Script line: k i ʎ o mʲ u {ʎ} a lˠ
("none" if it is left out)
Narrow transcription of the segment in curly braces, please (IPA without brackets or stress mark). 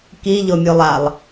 lˠ